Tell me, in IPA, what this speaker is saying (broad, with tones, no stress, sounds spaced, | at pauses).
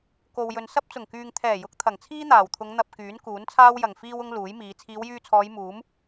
k o˨ w j ɵ˨ n s ɐ˥ p̚ t͡s ʊ˨˩ ŋ k yː˨ ŋ t̪ʰ ɛː˨˩ j ʊ˨˥ k̚ t̪ʰ ɐ˨˩ ŋ t͡sʰ iː˥ n̪ aː˨˩ w t̪ʰ ʊ˨˧ ŋ n̪ ɐ˧ p̚ k yː˨˥ n k uː˨˥ n t͡sʰ aː˥ w j ɐ˨˩ ŋ f iː˧ w ʊ˧ ŋ l uː˨˥ j m iː˨˧ t͡sʰ iː˨˧ w j yː˧ t͡sʰ ɔː˨˧ j m uː˨˥ m